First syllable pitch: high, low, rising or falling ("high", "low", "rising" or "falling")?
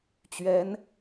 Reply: rising